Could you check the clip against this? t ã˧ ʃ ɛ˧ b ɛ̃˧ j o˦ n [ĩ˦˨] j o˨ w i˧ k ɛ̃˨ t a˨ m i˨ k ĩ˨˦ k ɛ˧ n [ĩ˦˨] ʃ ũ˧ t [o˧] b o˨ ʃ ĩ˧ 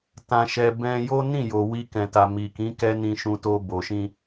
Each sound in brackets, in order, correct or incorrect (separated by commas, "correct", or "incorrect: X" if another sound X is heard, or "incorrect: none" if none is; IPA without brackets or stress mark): correct, incorrect: ĩ˧, correct